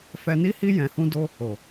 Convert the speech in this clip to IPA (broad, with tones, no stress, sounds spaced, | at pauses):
f ɛ˧ n i˦ h i˦ j ɛ̃˧ h ũ˦ d o˦ | o˨